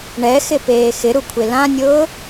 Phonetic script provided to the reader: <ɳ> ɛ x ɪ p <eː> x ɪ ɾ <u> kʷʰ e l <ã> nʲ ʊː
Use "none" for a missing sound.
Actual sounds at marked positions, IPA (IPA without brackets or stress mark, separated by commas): ɳ, eː, u, ã